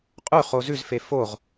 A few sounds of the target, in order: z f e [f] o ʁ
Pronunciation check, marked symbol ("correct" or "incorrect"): correct